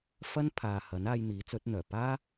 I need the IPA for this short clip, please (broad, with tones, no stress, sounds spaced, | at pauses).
f ɐ˥ n pʰ aː˨ h ɐ˨˥ n aː˧ j n̪ iː˨˥ t͡s ɵ˨˥ t̚ n̪ œː˨˩ p aː˥